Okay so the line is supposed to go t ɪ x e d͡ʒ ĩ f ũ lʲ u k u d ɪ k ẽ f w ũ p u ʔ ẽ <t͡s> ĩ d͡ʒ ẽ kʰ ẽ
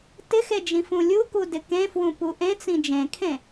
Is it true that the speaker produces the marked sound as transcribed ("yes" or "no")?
yes